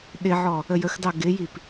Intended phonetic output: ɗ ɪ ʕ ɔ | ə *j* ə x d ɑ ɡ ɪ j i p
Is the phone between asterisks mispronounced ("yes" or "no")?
no